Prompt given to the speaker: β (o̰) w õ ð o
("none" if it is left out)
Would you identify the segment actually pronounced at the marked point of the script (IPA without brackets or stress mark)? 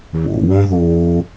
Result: o̰